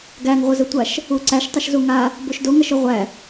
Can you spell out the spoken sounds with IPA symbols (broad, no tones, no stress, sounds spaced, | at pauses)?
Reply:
ɡ æ ŋ ʁʷ ə z ə tʷ a ʃ | u ǀ æ ʃ tˤ ə ʃ z u ŋ a | b o ʃ d o ŋ ɐ ʃ o ʁʷ æ